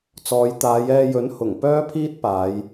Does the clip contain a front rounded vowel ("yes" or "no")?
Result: yes